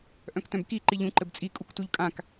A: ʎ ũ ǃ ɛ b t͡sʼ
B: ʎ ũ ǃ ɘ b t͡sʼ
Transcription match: B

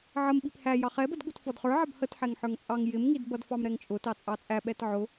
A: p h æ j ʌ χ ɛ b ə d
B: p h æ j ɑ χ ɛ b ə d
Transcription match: B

